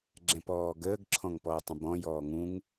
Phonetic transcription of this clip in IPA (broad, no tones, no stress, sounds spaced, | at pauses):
ɡ͡ǁ ɛ̃ p ɔː ɡ əː ɡ ǁʰ ɔ̃ ŋ p ɔː tˤ ə̃ b ɔ̃ j ɔː ŋ ũ ŋ